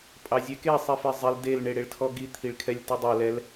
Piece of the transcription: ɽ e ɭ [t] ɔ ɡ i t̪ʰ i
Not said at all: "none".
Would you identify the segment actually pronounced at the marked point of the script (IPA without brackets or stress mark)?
tʰ